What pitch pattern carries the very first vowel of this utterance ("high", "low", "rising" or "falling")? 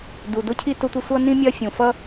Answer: low